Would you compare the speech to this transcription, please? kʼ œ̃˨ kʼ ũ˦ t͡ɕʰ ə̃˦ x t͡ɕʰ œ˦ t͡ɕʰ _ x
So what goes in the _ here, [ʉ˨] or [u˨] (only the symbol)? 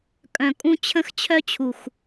u˨